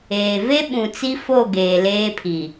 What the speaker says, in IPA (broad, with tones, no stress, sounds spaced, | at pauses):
eː˨ v e˦ ɓ ũ˨ t͡s i˦ f o˦˨ ɡ eː˨ l eː˦ pʰ i˨